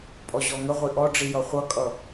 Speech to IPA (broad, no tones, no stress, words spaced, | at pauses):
pʼɔʑɔŋəʁʷi ʔɔɖ͡ʐijʌ χʷʌkʼʌ